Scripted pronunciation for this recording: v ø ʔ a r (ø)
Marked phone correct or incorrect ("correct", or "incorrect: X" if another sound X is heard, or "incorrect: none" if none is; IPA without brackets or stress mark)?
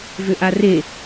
incorrect: e